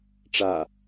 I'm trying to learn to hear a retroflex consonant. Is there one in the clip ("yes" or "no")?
yes